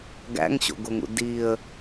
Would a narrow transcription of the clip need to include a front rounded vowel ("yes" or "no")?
no